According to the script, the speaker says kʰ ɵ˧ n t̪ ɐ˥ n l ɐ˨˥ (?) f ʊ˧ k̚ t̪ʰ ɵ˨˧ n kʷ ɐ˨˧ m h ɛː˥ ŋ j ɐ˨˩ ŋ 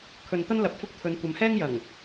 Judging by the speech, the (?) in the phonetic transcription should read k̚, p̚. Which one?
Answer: p̚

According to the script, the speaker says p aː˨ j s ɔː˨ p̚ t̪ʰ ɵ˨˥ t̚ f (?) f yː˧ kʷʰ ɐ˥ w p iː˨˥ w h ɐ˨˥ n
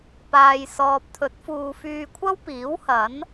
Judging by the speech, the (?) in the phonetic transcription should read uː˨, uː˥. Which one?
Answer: uː˨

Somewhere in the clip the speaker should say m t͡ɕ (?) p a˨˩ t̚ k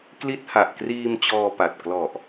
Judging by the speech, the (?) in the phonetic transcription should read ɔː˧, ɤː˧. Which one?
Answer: ɔː˧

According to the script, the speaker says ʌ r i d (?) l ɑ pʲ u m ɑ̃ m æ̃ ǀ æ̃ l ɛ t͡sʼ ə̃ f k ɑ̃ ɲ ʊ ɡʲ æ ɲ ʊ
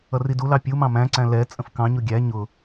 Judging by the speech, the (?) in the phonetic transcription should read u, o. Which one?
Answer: u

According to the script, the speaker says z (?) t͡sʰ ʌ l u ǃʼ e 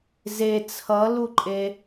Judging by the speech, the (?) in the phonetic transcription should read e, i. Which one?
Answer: e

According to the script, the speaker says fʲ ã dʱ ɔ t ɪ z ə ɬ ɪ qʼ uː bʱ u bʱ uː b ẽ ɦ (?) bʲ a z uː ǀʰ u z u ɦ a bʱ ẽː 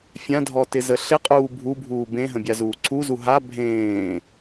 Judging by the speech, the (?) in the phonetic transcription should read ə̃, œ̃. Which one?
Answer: ə̃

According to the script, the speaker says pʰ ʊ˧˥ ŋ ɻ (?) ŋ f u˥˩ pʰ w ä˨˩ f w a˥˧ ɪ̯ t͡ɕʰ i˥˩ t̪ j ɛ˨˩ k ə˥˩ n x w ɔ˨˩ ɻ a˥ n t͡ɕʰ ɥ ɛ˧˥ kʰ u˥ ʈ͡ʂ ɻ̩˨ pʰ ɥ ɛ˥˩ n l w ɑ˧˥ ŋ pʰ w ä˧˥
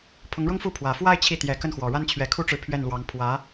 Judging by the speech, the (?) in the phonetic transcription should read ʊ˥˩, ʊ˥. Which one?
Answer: ʊ˥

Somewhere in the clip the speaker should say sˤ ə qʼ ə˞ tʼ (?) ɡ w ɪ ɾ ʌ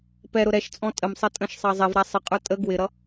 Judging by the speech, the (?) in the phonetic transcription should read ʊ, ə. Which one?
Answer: ə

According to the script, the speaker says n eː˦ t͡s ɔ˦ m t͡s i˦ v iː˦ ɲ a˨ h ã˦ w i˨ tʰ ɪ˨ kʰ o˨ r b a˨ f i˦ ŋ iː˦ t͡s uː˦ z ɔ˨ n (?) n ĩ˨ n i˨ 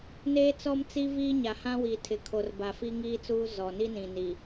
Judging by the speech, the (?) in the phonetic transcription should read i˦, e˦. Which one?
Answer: i˦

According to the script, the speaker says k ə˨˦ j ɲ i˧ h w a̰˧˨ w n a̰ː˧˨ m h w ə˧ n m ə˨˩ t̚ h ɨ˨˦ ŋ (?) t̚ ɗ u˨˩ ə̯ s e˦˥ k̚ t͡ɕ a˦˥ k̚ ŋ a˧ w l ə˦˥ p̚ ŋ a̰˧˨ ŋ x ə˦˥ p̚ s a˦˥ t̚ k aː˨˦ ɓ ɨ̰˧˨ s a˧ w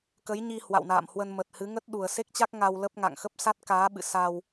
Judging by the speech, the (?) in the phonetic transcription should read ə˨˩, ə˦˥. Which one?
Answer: ə˦˥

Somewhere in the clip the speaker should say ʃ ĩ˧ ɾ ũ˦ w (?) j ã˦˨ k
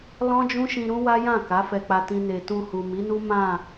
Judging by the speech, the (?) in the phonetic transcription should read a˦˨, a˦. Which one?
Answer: a˦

